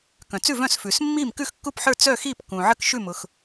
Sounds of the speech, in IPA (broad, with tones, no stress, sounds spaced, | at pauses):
k œ̃˩ t͡s ʉ˥˨ v œ̃˥˨ s f ʉː˩ s mː iː˥˨ m k ʉ˥˨ x kː u˥˨ p ħ ə˞˥˨ t͡s œ˥˨ x iː˥˨ p k ũ˩ ʕ ə˥˨ k ʃ ʉ˥˨ m ʊ˩ x